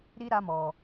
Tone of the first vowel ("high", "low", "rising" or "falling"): high